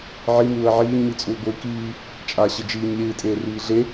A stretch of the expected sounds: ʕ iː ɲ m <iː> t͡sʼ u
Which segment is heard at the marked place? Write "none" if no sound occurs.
i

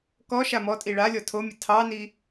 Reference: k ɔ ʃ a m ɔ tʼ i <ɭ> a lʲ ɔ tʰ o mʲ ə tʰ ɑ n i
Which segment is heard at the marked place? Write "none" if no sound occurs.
ɭ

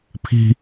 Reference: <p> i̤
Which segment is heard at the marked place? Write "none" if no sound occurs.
pʰ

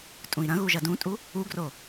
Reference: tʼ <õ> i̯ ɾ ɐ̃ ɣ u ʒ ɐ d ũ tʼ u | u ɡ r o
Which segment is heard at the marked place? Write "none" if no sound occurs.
ũ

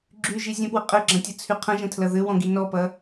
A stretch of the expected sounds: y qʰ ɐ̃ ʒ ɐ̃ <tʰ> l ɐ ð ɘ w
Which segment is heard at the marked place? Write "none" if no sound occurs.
tʰ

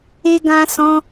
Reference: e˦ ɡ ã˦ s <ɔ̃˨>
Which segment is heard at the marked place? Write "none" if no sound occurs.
ɔ̃˦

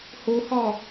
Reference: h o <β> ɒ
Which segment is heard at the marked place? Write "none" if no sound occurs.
h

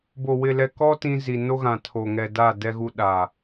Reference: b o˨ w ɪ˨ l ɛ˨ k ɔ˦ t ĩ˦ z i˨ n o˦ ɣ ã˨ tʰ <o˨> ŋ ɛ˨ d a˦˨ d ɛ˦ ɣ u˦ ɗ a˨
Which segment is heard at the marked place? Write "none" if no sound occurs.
o˨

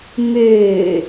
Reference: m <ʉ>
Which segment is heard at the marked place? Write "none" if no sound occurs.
ʉ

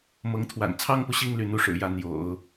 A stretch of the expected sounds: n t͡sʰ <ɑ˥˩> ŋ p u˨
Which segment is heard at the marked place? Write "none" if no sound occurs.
ɑ˥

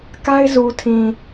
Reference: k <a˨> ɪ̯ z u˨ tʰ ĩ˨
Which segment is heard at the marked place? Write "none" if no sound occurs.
a˦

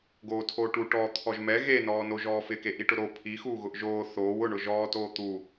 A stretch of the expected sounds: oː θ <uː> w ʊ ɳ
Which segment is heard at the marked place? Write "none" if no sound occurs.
oː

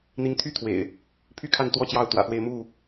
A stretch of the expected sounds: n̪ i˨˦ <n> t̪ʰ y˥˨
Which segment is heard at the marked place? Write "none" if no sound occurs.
ŋ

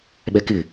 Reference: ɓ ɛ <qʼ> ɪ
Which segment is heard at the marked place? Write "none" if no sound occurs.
k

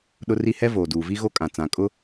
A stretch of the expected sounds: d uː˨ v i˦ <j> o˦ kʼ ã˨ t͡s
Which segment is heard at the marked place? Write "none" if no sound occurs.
ɣ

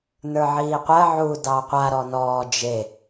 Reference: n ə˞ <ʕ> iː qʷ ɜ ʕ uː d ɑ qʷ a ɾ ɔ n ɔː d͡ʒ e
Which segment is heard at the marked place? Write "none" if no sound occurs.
ʕ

